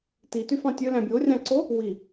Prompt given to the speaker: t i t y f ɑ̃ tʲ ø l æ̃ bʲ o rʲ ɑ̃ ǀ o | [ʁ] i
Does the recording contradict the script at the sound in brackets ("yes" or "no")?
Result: yes